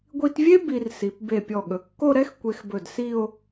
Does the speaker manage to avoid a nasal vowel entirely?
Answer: yes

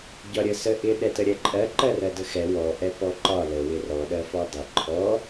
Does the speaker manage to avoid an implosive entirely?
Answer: no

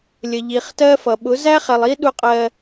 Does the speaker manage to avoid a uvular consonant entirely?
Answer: no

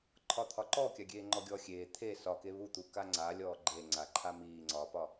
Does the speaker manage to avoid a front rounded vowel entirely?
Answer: yes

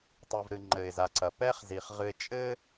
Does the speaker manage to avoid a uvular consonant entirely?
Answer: no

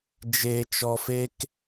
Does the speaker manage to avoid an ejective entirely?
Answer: yes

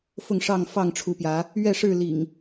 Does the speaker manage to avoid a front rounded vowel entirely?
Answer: yes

